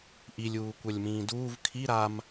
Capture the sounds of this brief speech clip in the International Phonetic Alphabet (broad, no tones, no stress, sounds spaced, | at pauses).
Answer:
ʔ i lʲ uː kʷ œ lʲ m ĩː d uː v kʰ i ɾ a m